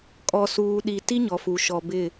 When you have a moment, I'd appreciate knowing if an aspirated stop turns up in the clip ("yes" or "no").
no